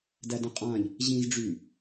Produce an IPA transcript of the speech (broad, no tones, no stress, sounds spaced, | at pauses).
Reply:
d æ d ə̃ qʼ ã ʎ | ʑ ĩ z ɖ͡ʐ y